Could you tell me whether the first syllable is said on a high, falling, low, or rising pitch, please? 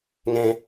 low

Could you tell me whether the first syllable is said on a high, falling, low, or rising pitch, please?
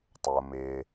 low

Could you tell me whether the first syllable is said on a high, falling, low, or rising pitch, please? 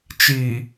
low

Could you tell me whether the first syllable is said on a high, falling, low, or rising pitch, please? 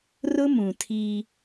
high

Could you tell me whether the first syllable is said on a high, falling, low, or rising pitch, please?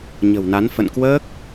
low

